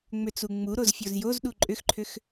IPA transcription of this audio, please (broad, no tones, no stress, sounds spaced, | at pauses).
ŋ͡m ʏ t͡s u ŋ͡m u ɾ o z fʲ o z j o z ɗ u ǃʼ ʏ x ǃʰ ʏ x